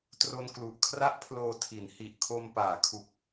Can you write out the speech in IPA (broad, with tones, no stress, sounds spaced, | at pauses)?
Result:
t r o˧ n k l u˨˩ ʔ kʰ r a˥˩ ʔ pʰ l oː˧ tʰ i˩˦ n h i˨˩ ʔ kʰ o˧ m p aː˩˦ kʰ u˨˩ k̚